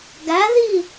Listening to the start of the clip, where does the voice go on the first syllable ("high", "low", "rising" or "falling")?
rising